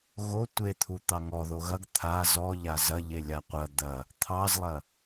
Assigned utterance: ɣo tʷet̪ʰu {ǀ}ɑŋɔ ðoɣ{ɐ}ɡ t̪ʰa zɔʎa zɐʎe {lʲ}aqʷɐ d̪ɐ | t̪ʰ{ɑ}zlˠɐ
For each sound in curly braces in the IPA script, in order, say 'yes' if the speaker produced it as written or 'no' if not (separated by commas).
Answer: no, yes, yes, yes